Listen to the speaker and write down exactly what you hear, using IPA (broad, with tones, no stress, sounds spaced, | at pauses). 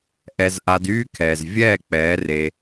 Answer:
ʔ ɛ˧ z ʔ a˧ d yː˦ kʰ ɛː˨ z vʲ ɛː˦˨ k͡p ɛː˨˦ r e˧